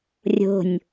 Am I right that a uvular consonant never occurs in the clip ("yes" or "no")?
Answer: yes